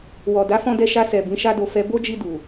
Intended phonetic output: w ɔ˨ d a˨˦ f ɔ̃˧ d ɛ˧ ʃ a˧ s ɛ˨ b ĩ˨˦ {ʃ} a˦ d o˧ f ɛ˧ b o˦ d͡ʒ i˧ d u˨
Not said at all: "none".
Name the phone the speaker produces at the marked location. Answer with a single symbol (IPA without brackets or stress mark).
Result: ʃ